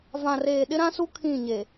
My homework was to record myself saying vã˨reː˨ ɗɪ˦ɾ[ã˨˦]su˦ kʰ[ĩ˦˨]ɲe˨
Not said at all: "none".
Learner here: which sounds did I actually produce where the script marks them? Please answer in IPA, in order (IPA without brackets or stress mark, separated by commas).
ã˦, ĩ˦˨